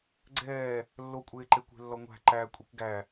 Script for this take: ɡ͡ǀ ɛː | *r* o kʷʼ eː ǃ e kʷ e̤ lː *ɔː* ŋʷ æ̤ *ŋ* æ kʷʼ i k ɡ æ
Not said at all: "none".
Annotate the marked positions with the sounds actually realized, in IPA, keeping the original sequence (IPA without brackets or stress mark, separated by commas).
lː, ɔ, ǃ